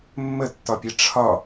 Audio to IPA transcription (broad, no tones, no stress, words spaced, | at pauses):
mːətːɒpʲɛ ʈ͡ʂʰɒ